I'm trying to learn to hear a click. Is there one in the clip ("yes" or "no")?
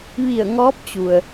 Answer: no